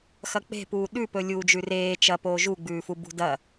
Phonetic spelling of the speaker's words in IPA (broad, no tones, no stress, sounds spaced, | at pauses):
x ɐ k͡p e̤ p uː ɗ ʉ p ɵ lʲ uː d͡ʒ ʉ r eː t͡ʃ ɐ p oː ʒ u ɡ͡b ʉː f u b ṳ d ɐ